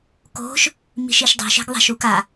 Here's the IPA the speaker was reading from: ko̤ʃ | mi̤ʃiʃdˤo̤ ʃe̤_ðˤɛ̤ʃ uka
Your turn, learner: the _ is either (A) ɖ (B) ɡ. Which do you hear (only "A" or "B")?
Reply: B